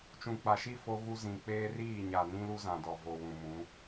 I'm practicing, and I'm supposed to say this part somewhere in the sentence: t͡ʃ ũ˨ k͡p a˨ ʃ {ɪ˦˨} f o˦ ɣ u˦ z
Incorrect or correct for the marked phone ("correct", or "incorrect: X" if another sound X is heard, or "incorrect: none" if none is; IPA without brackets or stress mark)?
incorrect: i˦˨